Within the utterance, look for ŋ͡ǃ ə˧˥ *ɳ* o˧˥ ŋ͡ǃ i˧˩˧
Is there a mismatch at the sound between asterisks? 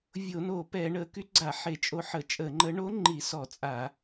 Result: no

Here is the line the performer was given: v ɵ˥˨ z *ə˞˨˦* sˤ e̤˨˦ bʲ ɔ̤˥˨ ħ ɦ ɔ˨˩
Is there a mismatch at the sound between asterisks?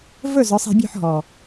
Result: no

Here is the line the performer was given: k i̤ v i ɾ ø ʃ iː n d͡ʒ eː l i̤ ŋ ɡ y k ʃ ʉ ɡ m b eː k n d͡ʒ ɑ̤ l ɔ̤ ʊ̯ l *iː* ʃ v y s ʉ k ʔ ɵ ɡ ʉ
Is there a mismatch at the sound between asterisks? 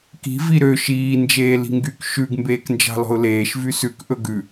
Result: yes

